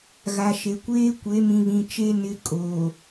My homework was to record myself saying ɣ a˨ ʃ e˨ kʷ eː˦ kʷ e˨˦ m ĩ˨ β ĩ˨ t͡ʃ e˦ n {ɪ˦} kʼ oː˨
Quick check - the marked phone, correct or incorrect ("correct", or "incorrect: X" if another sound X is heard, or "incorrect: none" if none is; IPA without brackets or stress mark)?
correct